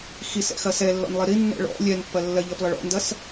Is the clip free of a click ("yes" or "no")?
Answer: yes